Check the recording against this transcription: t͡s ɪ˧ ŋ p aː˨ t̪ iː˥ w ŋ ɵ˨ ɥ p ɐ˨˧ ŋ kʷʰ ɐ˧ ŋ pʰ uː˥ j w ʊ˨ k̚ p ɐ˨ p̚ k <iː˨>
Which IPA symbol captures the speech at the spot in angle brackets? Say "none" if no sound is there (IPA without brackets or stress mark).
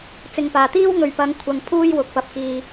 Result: iː˨